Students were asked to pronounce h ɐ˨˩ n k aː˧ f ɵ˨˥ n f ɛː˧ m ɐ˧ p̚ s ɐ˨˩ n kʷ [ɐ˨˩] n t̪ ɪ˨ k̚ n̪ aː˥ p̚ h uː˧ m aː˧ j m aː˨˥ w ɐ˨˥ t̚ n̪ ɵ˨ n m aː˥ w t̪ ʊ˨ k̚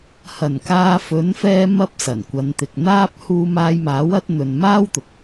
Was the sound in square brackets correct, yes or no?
no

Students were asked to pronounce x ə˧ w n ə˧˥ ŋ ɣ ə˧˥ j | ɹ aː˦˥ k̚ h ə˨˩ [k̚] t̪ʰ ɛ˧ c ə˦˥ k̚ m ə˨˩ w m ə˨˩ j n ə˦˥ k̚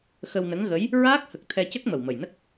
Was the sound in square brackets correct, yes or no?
yes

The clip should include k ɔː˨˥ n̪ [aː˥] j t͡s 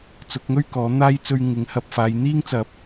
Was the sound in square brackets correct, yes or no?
yes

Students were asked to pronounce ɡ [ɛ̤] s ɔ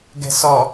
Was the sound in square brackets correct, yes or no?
yes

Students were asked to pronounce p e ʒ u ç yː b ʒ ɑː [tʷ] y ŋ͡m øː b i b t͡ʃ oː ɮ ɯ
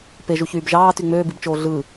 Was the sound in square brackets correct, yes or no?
no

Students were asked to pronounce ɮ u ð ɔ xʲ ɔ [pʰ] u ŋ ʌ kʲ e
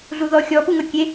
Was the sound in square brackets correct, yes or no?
no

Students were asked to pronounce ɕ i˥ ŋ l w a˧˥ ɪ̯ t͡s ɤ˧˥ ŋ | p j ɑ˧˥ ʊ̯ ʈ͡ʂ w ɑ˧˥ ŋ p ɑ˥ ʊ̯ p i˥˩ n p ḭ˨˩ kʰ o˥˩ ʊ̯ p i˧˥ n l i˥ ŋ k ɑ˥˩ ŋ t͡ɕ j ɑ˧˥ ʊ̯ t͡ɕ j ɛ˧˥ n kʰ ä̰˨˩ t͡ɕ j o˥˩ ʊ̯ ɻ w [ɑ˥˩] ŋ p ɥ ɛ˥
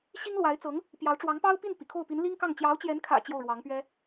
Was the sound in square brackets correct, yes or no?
no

